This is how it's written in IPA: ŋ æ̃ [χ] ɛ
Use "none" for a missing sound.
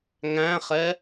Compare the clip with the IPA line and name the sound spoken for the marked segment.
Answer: χ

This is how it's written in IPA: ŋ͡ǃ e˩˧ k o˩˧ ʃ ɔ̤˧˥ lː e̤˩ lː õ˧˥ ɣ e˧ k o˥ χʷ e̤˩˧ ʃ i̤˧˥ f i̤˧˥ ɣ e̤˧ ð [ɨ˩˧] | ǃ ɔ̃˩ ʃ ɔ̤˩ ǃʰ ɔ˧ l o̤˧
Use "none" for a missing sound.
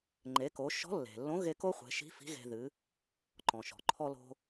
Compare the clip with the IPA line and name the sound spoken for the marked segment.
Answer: ɨ˩˧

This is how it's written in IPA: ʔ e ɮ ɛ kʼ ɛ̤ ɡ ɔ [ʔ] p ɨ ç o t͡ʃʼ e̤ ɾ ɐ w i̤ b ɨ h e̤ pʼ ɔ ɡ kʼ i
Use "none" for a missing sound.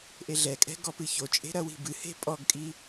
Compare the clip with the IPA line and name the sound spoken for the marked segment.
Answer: none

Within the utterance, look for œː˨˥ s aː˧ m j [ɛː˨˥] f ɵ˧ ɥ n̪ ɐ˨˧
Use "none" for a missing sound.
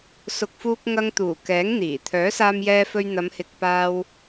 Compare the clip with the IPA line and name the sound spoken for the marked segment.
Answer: ɛː˧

